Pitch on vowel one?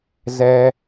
low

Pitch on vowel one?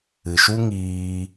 low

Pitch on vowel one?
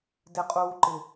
low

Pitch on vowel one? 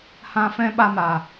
high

